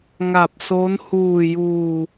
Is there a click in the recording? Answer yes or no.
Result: no